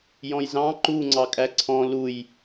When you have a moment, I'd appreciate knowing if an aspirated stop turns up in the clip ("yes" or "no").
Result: yes